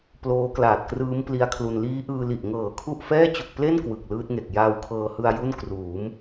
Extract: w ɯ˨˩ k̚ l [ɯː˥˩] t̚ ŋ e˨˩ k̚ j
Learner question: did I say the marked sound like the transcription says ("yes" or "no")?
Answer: no